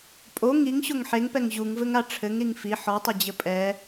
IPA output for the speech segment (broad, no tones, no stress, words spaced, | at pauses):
pʼo ŋiŋɕoŋ ħeŋpɛŋ ʑuŋvɘŋa ʈ͡ʂʰɘŋɾiŋ fi ħɔtˤɘd͡ʑɘ pʼɛ